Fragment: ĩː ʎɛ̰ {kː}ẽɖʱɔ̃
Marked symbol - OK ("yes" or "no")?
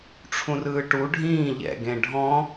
no